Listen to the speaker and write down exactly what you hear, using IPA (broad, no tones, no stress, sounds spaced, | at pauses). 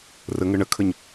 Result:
r ə ŋ ə ɳ ə kʰ ə ɲ